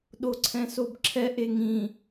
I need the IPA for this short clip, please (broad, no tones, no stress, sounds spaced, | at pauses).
ɗ o ǀʰ ɛ̃ s o b ǁʰ ɛ ʔ e ŋ ĩ